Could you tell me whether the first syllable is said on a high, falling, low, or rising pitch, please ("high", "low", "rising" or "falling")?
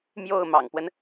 falling